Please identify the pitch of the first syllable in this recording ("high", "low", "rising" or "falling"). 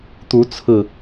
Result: rising